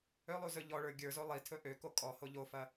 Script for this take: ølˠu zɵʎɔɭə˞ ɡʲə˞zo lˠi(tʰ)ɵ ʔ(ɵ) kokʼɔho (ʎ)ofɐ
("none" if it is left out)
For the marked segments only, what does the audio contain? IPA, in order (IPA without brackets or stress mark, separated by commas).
tʰ, ø, ʎ